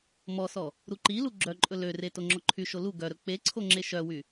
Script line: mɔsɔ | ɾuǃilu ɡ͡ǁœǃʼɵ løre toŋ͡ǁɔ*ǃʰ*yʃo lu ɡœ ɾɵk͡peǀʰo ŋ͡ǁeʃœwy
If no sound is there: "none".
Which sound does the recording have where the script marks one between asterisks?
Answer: ǃʰ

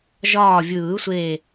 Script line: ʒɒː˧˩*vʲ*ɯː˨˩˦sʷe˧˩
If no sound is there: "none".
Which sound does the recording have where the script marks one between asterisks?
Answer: vʲ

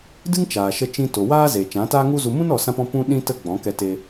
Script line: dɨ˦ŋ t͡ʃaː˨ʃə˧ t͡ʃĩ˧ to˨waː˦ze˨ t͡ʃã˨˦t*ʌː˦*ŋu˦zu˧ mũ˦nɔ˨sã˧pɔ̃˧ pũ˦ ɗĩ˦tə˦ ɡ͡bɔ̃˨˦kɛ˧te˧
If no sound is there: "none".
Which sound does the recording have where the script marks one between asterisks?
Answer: aː˦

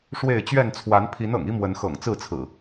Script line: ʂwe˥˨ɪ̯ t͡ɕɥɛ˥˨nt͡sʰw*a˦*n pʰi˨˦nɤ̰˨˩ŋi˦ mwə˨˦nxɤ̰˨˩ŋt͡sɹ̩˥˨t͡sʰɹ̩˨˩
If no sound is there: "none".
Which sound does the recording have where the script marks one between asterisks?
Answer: a˨˦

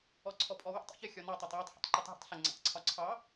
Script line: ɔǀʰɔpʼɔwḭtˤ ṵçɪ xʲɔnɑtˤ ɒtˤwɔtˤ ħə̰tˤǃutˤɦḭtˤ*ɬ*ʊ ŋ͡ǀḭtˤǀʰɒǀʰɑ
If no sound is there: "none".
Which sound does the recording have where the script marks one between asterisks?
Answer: ɬ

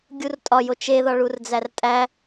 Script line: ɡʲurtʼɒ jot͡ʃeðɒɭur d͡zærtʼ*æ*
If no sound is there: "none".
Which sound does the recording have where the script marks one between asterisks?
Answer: æ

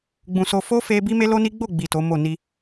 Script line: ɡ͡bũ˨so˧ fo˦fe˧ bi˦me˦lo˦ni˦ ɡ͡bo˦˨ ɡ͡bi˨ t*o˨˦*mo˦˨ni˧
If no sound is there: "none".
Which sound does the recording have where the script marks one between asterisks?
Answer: o˨˦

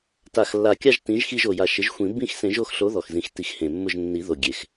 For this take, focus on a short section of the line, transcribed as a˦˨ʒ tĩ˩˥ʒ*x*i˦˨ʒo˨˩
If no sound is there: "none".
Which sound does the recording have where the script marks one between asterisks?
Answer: x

